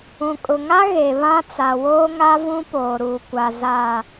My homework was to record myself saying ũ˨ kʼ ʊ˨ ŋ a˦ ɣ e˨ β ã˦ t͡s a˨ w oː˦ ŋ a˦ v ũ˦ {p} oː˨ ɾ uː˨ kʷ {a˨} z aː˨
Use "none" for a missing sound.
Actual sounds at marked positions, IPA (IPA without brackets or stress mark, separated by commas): p, a˨